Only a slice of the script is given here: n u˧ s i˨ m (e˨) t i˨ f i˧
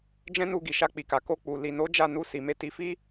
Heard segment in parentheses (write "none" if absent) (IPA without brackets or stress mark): e˧